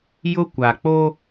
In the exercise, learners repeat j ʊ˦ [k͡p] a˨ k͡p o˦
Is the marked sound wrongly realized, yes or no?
yes